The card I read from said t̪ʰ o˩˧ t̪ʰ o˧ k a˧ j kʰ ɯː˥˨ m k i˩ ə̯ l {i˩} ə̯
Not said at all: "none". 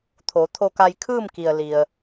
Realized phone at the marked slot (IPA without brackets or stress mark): i˩